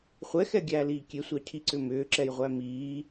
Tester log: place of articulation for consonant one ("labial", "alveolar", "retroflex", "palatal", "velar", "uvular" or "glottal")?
uvular